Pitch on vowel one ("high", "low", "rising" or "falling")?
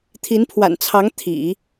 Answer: rising